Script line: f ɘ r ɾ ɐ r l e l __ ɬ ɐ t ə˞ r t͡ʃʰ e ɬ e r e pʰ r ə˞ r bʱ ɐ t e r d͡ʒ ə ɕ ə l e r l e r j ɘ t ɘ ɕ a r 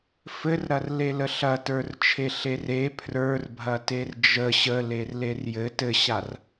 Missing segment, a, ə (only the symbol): ə